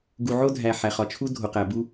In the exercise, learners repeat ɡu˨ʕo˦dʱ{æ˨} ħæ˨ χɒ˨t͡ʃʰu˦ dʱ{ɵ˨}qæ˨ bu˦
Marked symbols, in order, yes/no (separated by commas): yes, no